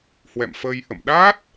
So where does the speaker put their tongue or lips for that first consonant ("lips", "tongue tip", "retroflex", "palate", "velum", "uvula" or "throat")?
throat